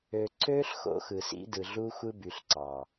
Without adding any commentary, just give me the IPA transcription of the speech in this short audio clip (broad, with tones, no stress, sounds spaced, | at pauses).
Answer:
ø˨ ǀ øː˦ ɬ x o̰˦ x ɯ˨ s ḭ˦ d ɯ˨ ɮ u˦ xʷ ɯ˦ b y˨ ɬ ǀ ɑ˨